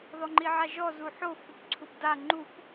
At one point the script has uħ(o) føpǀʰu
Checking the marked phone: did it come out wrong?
no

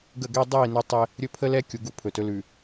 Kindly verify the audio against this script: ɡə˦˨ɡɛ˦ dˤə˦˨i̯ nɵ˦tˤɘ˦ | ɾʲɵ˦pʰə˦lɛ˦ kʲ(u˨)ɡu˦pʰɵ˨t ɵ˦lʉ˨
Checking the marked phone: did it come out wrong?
no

